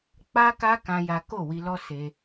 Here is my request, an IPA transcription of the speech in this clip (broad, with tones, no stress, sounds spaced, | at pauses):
k͡p a˦ k a˦ k ã˦ j a˦ k o˦˨ w i˧ l ɔ˦ s e˧